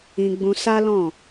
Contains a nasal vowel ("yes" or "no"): yes